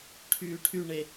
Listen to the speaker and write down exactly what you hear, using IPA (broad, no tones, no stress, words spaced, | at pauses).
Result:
ʈʰyːʈʰyɳe